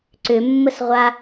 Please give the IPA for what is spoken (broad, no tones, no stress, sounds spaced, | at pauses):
ǀ ʏ mː ə s ʁʷ a